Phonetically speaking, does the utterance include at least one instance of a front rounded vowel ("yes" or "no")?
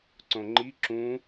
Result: no